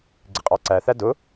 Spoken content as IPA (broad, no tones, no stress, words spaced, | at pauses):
ɡ͡ǀɪqʼɑǀæθæ dʊ